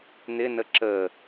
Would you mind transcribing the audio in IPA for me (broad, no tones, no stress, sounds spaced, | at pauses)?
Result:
n̪ ɪ n ə ǁ ə